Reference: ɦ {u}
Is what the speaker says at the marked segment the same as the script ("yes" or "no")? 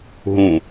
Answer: no